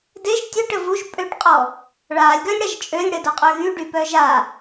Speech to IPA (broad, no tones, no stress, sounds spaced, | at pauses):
d e ʒ tʲ ø ʈ ə v u ʒ pʼ ø ʈ qʼ ɔ | ɭ a lʲ ɡ œ lʲ ɽ a ʒ t͡ʃʼ ø lʲ ɽ ə d o qʼ œ ɣ y ɖ y p œ ʒ a